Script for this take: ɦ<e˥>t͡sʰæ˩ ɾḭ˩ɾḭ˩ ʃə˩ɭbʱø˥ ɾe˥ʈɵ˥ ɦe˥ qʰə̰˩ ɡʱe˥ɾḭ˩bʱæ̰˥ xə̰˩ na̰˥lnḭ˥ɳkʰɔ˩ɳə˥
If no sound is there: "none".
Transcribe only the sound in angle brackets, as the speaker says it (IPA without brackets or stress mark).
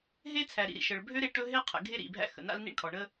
e˥